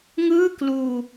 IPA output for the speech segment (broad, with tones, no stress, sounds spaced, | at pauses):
ŋ ɯː˥˩ k l uː˧